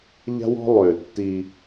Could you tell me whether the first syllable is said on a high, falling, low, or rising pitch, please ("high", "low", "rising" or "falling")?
high